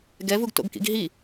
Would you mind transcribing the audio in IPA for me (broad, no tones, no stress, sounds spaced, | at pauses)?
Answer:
ɡ ɛ v u ɡ t o̰ ɡ k ḭ ɡ ɦ i